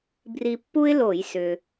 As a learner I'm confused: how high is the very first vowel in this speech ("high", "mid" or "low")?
high